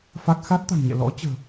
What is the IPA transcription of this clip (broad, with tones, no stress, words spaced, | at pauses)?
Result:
fa˦˥k̚ xa˦˥t̚t̪a̤˨˩ŋɲɛ̰˧˨ lɔ̰˧˥t͡ɕə̤ː˨˩